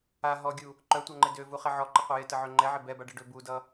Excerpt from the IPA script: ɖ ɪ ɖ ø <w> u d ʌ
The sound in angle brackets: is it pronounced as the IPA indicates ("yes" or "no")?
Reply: no